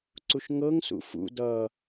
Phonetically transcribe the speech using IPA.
ǀ u ʃ ŋ ɤ ŋ s ṵ f ṵ d ʌ

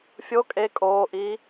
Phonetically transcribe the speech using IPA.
fʲ o kʼ e kʼ oː ʔ iː

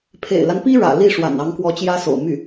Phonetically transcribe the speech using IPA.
pʰ ḛ˨˩ ɪ̯ l a˦ n p i˥ ɻ ä̰˨˩ l i˥˩ ʂ w a̰˨˩ n ɑ˧˥ ŋ k w ɔ˧˥ t͡ɕ j ä˥ s o̰˨˩ ʊ̯ m y˥˩

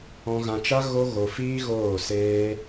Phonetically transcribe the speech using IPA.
ɔ̃˧ ɣ ã˧ t͡ʃ a˦ ɣ o˦ ɣ o˧ f iː˦ ɣ oː˦˨ s eː˦

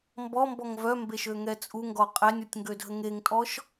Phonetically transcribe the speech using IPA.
m b ɔ m b ɔ ŋ v œ m b e ʃ ø ŋ ɛ t͡sʼ u ŋ ɡ ɔ qʼ ɛ nʲ ɔ tʲ ŋ ɡ ø dʱ ə ŋ e ŋ tʼ ɔ ʃ

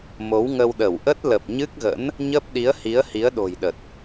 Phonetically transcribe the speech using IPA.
m o˨˦ w ŋ ə˧ w ɗ ə˧˩ w ʔ ə˦˥ t̚ l ə˨˩ p̚ ɲ ɨ˦˥ k̚ ɣ ə̰˧˥ n | ɲ əː˦˥ p̚ ɗ i˨˦ ə̯ h i˨˦ ə̯ h i˨˦ ə̯ ɗ o̤˨˩ j ɗ ə˨˩ t̚

